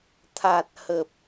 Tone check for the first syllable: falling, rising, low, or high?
low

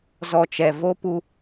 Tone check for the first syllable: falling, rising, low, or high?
low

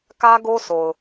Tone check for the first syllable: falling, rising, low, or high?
high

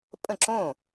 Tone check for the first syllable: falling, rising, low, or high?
falling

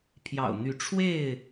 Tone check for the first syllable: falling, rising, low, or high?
low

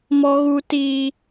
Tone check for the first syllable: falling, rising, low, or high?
high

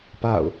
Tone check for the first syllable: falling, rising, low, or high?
falling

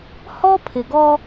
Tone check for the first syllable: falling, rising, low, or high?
high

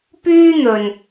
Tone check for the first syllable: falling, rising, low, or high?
high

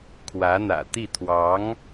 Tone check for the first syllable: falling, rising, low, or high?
rising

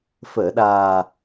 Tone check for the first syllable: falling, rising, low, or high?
low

